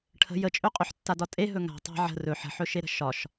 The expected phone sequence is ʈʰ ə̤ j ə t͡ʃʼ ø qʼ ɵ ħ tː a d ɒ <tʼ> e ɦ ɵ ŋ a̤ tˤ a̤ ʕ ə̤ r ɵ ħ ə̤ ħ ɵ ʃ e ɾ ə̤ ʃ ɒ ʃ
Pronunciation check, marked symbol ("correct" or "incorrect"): correct